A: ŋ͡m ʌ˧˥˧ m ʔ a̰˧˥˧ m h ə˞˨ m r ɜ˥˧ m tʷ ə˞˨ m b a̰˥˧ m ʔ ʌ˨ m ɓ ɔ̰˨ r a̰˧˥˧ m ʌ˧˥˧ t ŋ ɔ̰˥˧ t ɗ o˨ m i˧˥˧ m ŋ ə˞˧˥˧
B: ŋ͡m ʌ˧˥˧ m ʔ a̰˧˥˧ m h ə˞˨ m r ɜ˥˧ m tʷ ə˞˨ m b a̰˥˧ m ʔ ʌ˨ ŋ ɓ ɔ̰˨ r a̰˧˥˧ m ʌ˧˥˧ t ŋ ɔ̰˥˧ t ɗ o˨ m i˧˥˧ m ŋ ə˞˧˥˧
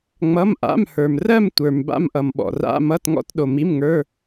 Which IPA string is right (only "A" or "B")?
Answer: A